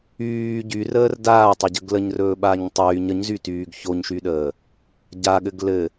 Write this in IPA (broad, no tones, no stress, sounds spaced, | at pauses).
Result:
yː ɟ y r əː r d aː tˤ a ɟ ə ɡ l ə ɲ r ɵː ɓ a ɲ tˤ yː ɲ ə ɲ z y t yː ɡ ç o ɲ ʃ y ɗ əː | ɟ a ɠ ɘ ɡ l ɘ